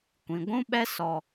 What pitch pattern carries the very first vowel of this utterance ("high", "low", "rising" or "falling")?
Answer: low